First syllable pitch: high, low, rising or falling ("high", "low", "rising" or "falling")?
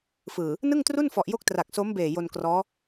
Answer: low